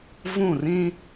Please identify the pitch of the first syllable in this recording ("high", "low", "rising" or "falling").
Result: falling